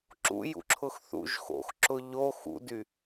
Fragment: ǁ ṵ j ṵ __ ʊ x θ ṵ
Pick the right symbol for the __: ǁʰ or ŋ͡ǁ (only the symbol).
ǁʰ